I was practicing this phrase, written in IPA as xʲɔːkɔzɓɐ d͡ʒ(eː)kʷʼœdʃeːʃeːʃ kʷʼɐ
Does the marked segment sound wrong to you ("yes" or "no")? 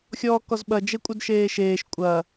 yes